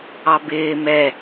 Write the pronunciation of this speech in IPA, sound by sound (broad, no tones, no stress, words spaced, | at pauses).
ɑbɪː mɛ